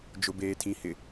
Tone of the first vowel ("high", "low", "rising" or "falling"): low